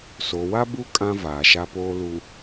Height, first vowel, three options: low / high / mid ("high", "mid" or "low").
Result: mid